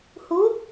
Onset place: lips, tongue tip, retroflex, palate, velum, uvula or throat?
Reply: throat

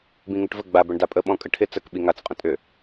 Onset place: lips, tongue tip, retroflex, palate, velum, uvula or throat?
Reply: lips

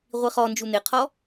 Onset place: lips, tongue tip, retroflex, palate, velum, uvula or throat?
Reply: uvula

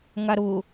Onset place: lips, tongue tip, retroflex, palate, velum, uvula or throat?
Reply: velum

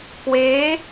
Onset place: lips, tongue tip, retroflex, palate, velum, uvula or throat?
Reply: velum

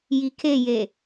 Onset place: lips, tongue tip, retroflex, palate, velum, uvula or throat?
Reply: palate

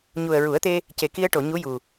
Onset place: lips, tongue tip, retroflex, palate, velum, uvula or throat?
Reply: palate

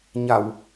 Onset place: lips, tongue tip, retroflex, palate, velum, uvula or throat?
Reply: palate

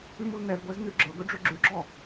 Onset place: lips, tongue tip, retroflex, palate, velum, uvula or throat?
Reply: lips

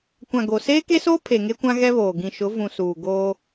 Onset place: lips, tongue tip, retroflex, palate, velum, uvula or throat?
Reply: velum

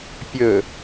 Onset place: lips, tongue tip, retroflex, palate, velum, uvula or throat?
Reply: lips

